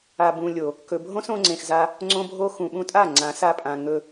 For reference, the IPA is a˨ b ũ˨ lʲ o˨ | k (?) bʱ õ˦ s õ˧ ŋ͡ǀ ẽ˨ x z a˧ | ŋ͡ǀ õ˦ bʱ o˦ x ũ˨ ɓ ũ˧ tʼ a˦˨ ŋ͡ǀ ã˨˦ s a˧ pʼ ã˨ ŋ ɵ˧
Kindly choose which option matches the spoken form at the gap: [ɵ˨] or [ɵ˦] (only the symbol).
ɵ˨